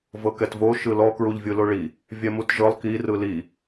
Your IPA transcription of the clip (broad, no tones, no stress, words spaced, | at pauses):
vɤkɛtvo ʃɯlɔ kɹuʎvʲɯloɭi | vʲɛmutʒɤlˠ ki rɯli